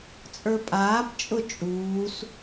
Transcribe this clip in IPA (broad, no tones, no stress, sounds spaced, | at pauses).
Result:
t͡sʼ ə˞ pʼ aː p t͡ʃʼ ʊ t͡ʃʼ uː s